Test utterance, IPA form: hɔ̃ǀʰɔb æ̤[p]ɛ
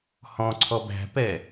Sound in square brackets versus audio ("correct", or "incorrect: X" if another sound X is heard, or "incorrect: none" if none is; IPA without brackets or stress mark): correct